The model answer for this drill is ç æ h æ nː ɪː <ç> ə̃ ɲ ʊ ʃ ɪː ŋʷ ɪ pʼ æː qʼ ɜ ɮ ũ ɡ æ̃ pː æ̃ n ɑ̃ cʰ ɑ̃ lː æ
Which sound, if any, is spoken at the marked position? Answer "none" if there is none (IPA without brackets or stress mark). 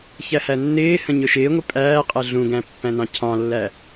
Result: h